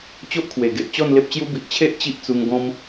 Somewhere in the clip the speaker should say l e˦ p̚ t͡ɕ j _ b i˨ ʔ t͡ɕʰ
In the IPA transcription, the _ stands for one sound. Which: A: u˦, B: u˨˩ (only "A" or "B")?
A